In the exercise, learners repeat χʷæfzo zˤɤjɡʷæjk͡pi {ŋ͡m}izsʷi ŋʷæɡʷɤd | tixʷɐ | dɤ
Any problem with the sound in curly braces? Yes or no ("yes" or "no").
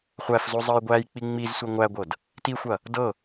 no